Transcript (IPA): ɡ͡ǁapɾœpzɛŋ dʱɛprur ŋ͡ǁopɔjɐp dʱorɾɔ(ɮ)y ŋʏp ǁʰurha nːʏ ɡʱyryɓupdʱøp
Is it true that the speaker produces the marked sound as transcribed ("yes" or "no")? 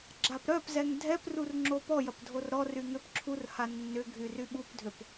no